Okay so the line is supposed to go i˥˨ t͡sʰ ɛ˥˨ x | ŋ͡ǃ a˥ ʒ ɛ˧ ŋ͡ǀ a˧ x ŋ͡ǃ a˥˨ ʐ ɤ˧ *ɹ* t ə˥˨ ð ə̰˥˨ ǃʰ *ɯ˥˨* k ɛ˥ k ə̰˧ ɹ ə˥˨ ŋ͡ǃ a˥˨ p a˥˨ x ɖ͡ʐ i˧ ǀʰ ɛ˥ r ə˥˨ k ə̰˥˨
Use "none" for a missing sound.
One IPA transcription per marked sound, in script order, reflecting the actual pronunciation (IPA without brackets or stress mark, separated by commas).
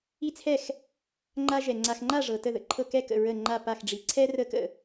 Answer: none, ɤ˥˨